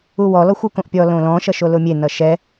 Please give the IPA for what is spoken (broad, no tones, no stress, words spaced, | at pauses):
uwɔ lɔxʷɯkõʔpʲɔ lõlɔ̃ ʃʌʃolʊmʲe nʌʃɛ